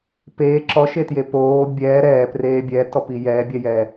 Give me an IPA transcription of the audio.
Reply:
peː ǁɔʃetje poː bʲɛː ɾɛːpreː bʲɛtɔpi jɛːbʲɛjɛː

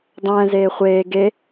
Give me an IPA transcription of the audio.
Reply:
dˤɛ̃ːzeː χʷeː ɡe

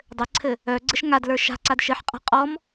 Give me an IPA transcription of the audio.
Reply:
dˤɘǀʰɘ | œ ɡ͡ǀɘʃŋadlə˞ ʃa̤ǀad ʃɘħqʼa̤ qʼɔm

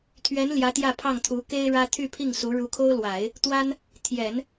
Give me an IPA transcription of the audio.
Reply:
t̪ʰɥɛ˧˥n ljä˧˥ t̪jä˥˧pʰɑ˥˩ŋt̪ʰu˧˥ ke˥ɪ̯ɻä˥ t̪ʰy˥˧pʰi˥˩ŋsu˧˥ ɻu˧˥kʰo˥ʊ̯lwa˨˩˦ɪ̯ | t̪wa˥n | t̪ʰjɛ˨˩˦n

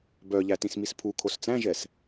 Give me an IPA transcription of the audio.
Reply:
bœʎæ tĩsmispʰu kʰost͡sæ̃ʒɛs

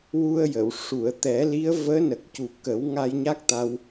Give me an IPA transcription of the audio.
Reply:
wu˧ə̯jə˨˩˨w ʂu˨˩˨ə̯t̪ɛ˨˩˦li˧˥ə̯ vəː˧˥nə˨˩k̚cu˨˩ kə˨˩˦wŋa˧jɲa˦˥k̚t̪a˧w

